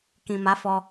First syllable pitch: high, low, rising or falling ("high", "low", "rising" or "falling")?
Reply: low